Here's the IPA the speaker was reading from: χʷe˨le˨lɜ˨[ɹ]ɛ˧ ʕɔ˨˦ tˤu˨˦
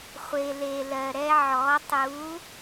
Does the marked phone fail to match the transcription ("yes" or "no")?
yes